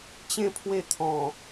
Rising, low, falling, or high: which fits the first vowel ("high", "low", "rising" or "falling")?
falling